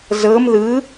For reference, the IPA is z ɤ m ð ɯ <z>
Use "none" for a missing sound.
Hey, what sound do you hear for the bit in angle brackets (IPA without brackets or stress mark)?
none